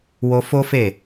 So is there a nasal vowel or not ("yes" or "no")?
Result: no